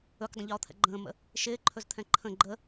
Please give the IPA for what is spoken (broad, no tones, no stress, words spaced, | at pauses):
ɵkʷdˤə̃ʎɔːt̪ʰɛ̰ ɡ͡ǃə̃ːmə̰ | ʃɪːǃʰɵzt̪ʰɛ̃ ǃʰə̃ ɡ͡ǃə